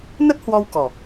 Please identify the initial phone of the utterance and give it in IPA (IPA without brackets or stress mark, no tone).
n